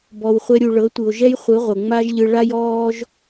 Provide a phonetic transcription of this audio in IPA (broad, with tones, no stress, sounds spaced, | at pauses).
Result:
b ɔ˧ w χʷ ɛ˦ ɾʲ u˧ ɭ ɤ˨˦ tʷ ɯ˨ o̯ ʒ ɛ˦ j χʷ ɯ˨˦ ʁʷ ɤ˨ ŋ͡m a˦ ʒ ʎ ɯ˧ ɭ a˦ j ɔː˦ ʒ